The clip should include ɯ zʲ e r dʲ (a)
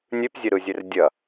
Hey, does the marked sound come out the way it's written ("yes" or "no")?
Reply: no